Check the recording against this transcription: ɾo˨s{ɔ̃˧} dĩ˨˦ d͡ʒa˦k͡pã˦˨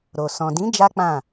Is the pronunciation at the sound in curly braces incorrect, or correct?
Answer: incorrect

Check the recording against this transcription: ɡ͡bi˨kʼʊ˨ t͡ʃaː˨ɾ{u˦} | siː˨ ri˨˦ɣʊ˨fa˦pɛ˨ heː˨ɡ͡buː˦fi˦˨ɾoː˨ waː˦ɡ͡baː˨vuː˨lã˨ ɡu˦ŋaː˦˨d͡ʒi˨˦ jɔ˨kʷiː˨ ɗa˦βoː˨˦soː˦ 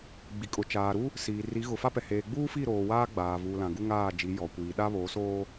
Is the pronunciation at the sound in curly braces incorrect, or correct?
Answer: correct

